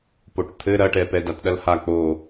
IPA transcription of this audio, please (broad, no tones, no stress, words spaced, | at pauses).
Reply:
poʈt̪ʰɘ ɾɐʈɛpɛ datɗɐlha k͡po